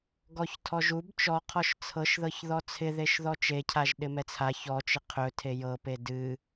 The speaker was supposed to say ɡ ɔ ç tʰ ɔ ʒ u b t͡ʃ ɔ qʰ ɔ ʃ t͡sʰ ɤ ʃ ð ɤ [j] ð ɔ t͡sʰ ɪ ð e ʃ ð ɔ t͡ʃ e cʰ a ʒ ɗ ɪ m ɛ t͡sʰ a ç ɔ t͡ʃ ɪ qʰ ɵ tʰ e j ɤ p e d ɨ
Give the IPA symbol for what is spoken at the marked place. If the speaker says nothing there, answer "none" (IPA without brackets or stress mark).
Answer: ç